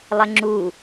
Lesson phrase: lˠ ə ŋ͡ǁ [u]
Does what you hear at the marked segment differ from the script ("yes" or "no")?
no